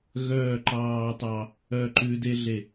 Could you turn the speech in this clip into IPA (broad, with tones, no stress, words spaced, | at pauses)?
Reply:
ɣœː˦˨ǃɑː˦tˤɑ˦ | œ˦˨ǃʉ˦ de˦ ɮe˦˨